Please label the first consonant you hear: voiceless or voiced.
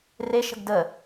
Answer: voiced